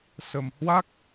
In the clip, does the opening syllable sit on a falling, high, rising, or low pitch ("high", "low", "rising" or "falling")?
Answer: low